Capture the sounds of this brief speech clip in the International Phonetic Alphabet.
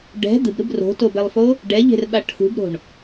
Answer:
ɖ ɛ̤ d̪ ɯ b ɾ ɯ b r o̤ t o b ɛ lˠ f o | ɖ ɛ ʎ e̤ r ɓ a ʈʰ ṳ b ɾ o̤ ɳ

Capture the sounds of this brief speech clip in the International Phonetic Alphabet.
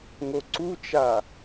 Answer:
ŋ o ǀ u t͡ʃ a

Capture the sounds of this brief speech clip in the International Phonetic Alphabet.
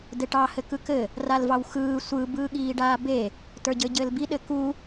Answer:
d ɘ ʈ ɑ h ɘ k ɯ k ɘ | r a l v ɑ w x ɯː sʷ ɯ b ɯː ɠ iː ɖ aː b e | t ə˞ ɟ ɘː ɟ ɘː l b i ɗ ɘ k u

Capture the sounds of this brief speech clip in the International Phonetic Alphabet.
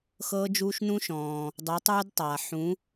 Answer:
x ɤː˦ d͡ʒ uː˦ ʃ n ũ˦ ʃ ɔ̃ː˩ | dˤ u˩˥ tˤ uː˦ d tˤ aː˩ ħ ũ˩˥

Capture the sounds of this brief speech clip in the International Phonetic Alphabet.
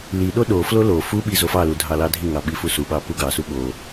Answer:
l i ɗ o ɗ o f l o l o f u ɓ i z o f ɑ l u dʱ ɑ l ɑ dʱ i ŋ ɑ ɓ i f u s u ɓ ɑ p u ɡ ɑ s u ɓ o

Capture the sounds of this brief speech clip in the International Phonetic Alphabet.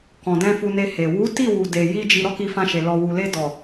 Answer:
k ɔ̃˨ d ɛ̃˧ f u˧ n e˧ h e˨ w u˨˦ t i˦˨ w u˨ d e˨ j i˧ d͡ʒ i˧ ɾ ɔ˦ k i˧ f ã˧ ʃ e˨ l ɔ˨ w u˨ l e˧ d ɔ˨

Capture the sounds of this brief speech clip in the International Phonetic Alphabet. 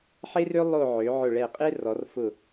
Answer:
ħ e˥ r ø˥ lˠ o˥˧ ʕ ø˩˧ ʕ ʊ˧˩ ɭ ɛ˧˩ qʼ e˥ r ɔ˩˧ r f ʊ˧˩

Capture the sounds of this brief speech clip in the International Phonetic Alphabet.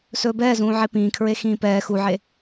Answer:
s ɵː b ɛː z ũː ʕ e p ĩː kʰ ɹ e x ĩː p ɛː x u ʕ e

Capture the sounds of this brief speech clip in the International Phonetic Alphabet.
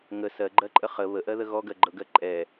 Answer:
ŋ ə s ɜ ɡ͡ǃ ɜ ǃʼ ə χ ə β ə ʔ ɜ ð ə ɣ ɔ ɡ ɜ ɡ͡ǃ ɤ ɡ ɜ ǃʼ ɛ

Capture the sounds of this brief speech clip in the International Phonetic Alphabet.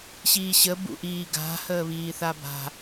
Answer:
ɕ iː ɕ ə b ṵ ʔ iː ɡ a̤ h əː β iː θ a b a̤

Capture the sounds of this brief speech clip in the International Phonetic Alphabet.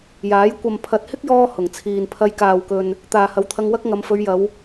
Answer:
j aː˨˥ j kʷ ɐ˨ m pʰ ɐ˨ t̚ h ɪ˥ k̚ j ɔː˥ h ʊ˨˩ ŋ t͡sʰ iː˨ n pʰ ɐ˧ j k aː˨ w k ɵ˨ n | t̪ aː˨ h ɐ˨˧ w t̪ʰ ɐ˧ ŋ w ɐ˥ k̚ ŋ ɐ˨˧ m f ɵ˨˧ ɥ j ɐ˨˧ w

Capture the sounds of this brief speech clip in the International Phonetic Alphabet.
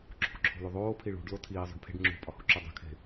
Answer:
ǁʰ ṳ ǁʰ o̤ l u ðˤ oː pʰ i ɭ ṳ ɖ l o tʰ iː zˤ o̤ ɖ pʰ e̤ ɖ ŋ͡ǁ ṳ pʼ ɒ h u ǁ u dˤ e̤ kʰ e̤

